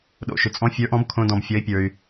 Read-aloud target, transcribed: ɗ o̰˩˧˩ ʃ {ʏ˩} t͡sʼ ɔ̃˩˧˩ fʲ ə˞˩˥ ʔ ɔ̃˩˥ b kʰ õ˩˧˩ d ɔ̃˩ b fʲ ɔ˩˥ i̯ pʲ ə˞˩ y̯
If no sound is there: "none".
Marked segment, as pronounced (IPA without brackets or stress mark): ʏ˩